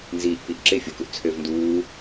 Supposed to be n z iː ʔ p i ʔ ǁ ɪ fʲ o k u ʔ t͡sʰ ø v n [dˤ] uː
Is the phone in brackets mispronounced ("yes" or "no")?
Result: yes